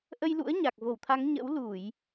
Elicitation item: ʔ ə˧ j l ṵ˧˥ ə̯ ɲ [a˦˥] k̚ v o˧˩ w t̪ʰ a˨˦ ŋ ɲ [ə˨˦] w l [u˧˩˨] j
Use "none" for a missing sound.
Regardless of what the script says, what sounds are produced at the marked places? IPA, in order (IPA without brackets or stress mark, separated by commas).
a˨˩, ə̰˧˥, u˧˩˨